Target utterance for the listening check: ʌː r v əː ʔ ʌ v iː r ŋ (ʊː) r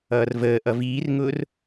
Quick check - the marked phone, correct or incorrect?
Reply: correct